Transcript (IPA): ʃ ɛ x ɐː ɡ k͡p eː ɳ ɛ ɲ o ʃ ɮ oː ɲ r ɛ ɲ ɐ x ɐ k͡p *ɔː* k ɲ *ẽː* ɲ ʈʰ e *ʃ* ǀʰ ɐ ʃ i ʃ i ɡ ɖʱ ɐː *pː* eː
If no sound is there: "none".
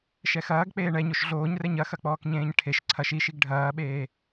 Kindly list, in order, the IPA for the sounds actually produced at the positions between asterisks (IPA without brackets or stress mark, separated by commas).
ɔː, ẽː, ʃ, ɓ